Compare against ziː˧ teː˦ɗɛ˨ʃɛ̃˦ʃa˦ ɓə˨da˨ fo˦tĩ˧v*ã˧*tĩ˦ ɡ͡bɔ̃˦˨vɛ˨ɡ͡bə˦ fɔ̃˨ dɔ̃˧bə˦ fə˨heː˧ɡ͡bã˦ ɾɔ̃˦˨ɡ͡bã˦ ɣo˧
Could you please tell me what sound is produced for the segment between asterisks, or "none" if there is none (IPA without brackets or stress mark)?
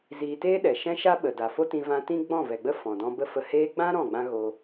ã˧